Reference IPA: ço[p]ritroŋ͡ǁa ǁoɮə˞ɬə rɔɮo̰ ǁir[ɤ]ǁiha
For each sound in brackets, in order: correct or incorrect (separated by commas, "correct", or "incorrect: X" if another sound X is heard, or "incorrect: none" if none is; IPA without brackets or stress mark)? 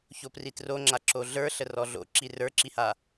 correct, incorrect: ə˞